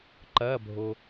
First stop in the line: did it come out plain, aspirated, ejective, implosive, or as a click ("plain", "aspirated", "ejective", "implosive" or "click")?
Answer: click